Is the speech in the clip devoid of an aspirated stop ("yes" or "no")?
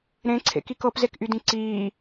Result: no